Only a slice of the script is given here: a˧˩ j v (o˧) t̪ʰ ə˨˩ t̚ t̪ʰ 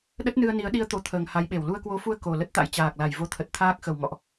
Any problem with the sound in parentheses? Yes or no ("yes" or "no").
no